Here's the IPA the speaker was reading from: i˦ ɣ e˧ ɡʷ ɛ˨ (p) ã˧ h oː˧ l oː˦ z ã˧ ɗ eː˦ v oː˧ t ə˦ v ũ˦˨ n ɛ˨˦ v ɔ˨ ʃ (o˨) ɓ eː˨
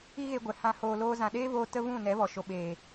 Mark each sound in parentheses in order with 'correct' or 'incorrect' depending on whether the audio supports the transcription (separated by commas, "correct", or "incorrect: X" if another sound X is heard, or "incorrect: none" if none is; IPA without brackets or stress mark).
incorrect: h, correct